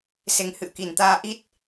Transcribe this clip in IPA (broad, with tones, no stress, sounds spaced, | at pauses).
s e˨˦ ŋ h ɨ̰˧˨ ə̯ k i˨˩ n t̪ aː˧ ʔ i˦˥ t̚